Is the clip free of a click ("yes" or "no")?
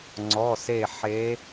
no